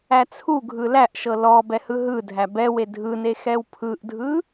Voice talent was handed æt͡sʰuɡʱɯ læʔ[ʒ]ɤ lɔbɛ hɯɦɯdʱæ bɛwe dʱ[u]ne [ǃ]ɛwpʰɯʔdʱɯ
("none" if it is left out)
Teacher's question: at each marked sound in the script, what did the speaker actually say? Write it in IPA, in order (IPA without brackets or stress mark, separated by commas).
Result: ʃ, ɯ, x